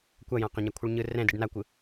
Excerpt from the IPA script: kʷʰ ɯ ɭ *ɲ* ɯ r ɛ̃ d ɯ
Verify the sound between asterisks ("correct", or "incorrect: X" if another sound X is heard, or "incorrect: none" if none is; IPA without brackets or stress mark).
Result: correct